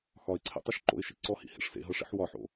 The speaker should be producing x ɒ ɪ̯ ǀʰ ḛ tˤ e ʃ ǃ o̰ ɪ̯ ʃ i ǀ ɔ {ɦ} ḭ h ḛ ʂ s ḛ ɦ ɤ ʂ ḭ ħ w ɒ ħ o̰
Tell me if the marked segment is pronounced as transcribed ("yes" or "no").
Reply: no